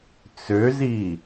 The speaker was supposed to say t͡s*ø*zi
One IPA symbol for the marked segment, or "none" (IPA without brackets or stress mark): ø